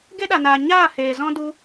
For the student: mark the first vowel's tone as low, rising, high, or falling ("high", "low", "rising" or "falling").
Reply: high